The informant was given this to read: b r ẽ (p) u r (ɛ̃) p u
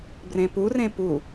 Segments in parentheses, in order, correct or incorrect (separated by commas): correct, incorrect